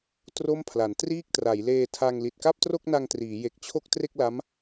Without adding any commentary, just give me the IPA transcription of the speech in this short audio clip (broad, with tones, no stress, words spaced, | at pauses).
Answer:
tro˥˩mpʰla˩˦n triː˥˩k̚tra˩˦jleː˧tʰa˧ŋ li˨˩t̚ka˥˩p̚tro˥˩k̚na˧ŋ triː˩˦je˨˩k̚t͡ɕʰo˥˩k̚ tre˥˩k̚la˦˥m